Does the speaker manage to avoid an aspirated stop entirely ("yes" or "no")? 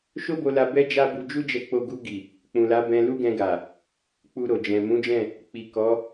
yes